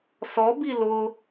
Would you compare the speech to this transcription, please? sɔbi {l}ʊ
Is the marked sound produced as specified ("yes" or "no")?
yes